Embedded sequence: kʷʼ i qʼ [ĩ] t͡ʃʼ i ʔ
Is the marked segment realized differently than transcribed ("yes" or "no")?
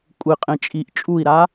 no